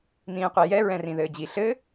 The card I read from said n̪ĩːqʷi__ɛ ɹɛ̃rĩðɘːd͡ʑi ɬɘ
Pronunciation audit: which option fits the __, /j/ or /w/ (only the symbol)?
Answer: j